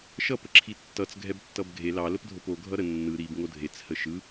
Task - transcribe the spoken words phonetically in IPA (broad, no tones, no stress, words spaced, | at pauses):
ʃʌ pəǁʰitːʌt͡s ɡʱɛbtːʌbɡʱe lɑ ləpdʱopo ɡʱʌɾə nːɯ ɾib ŋodʱet͡s həʃɯ